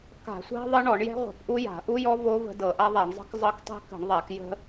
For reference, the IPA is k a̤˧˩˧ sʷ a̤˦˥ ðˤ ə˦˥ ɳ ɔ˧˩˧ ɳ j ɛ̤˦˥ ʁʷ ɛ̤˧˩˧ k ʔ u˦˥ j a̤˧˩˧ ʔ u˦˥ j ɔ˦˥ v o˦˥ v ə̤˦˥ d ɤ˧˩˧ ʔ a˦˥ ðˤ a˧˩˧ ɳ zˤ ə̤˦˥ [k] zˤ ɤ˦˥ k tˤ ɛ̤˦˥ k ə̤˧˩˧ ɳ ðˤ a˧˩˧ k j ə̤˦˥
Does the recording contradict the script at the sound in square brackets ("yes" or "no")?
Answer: no